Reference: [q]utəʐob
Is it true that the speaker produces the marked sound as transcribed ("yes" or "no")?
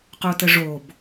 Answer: yes